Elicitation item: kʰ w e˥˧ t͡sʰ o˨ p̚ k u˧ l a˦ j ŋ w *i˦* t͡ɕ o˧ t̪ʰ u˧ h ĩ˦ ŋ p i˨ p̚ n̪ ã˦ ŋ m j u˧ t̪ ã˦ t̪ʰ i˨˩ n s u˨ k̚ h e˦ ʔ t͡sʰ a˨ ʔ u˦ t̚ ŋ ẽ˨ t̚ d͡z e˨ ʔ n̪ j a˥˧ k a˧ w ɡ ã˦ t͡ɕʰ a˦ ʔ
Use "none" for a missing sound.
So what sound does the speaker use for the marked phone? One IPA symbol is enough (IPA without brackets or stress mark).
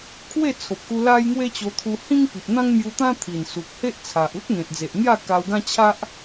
e˦